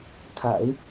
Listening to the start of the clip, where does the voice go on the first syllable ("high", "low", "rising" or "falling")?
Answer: low